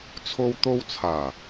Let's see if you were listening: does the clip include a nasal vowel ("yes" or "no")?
no